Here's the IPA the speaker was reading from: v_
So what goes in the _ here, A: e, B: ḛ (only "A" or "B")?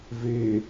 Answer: A